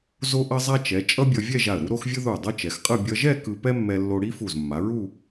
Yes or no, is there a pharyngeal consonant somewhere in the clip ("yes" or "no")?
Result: no